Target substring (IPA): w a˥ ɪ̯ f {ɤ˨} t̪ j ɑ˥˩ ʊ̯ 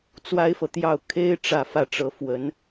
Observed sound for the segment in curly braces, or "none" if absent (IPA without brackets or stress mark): ɤ˨